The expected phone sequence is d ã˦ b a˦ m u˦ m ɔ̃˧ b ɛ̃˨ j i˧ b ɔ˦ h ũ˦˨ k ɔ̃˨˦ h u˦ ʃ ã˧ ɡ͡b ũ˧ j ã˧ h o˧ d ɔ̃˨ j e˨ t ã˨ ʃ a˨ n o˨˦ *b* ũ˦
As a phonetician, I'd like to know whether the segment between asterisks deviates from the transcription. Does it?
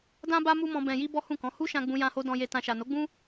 yes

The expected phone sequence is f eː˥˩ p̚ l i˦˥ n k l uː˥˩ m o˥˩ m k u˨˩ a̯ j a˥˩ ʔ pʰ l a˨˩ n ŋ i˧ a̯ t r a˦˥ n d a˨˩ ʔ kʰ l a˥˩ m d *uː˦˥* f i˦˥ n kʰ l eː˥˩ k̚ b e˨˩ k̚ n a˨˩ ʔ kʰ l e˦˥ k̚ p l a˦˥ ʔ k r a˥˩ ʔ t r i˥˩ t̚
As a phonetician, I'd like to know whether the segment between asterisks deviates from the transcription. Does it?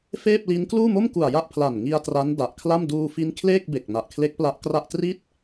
yes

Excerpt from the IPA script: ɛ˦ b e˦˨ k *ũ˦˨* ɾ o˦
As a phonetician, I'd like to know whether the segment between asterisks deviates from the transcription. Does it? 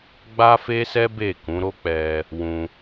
yes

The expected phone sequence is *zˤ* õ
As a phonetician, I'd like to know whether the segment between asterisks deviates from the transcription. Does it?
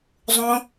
no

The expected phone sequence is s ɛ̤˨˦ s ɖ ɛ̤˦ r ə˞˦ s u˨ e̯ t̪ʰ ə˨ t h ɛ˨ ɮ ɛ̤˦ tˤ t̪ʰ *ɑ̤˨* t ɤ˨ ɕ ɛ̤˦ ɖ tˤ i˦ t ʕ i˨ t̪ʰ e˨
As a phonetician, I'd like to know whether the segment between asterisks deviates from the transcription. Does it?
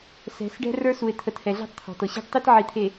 yes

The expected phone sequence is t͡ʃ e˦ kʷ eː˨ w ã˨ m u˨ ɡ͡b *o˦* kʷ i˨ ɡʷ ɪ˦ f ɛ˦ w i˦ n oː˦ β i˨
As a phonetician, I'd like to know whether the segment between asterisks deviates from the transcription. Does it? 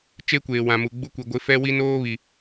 yes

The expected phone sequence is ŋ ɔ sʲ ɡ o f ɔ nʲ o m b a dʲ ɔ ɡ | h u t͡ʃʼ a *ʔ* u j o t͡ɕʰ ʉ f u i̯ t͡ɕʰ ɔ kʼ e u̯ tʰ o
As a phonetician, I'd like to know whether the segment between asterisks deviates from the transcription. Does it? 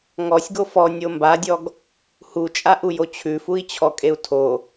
no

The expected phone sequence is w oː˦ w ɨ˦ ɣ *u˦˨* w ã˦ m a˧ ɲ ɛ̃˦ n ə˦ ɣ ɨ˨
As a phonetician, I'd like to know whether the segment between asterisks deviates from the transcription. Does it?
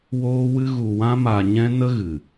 yes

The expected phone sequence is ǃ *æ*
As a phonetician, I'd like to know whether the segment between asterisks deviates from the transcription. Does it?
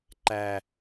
no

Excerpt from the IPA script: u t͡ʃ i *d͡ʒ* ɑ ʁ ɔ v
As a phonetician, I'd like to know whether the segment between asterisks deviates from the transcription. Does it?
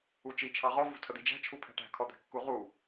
yes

